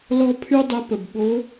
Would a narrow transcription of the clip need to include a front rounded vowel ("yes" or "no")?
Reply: yes